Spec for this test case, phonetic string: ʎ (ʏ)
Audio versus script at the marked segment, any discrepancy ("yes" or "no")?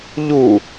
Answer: yes